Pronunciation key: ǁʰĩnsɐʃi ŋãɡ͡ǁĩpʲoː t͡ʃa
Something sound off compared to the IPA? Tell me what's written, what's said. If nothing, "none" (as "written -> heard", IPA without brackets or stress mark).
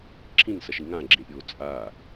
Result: t͡ʃ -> t͡sʼ